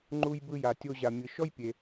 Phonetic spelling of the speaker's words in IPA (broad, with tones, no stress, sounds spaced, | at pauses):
ŋ͡ǃ u˧ j b ɯ˧ j a˩ tʲ o˧ ʑ a˩ mʲ ɯ˩ ʃ ɔ˥ j pʲ e˩